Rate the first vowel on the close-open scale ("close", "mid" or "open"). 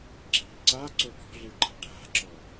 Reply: close